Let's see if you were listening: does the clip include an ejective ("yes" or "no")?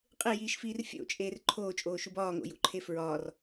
yes